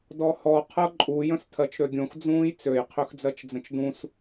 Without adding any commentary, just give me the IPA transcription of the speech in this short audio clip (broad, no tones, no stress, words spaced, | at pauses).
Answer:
dɔhɔ qʰɤǃʼu jə̃stʰɜt͡ʃɾøɡʲõx d͡zũːjt͡søj qʰøxd͡zɜt͡ʃd͡zə̃t͡ʃdũs